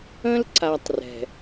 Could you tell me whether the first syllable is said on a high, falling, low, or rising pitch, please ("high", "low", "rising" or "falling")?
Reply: high